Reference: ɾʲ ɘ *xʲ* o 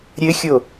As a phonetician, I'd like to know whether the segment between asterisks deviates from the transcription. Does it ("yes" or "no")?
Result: no